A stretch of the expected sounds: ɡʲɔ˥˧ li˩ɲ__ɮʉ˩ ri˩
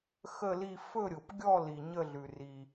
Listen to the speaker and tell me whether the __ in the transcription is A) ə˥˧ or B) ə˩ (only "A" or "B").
A